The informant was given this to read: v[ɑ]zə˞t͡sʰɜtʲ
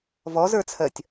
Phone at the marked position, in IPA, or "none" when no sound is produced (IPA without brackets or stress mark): ɔ